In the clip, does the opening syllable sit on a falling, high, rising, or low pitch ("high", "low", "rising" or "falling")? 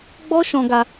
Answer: high